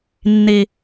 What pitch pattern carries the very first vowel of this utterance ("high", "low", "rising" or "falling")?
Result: low